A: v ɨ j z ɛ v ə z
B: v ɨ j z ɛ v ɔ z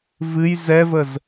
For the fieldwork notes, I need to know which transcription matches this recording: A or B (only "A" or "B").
A